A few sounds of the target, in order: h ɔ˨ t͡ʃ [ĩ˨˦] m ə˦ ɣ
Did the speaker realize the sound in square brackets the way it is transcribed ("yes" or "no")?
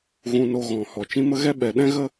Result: no